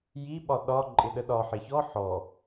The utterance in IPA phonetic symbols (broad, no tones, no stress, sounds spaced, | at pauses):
j i ɓ ɒ ɗ ɒ ǃʼ ɪ ɗ ə ɗ ɒ ħ ɪ ç ɔ ħ ɔ